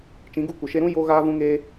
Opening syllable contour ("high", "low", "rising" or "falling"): rising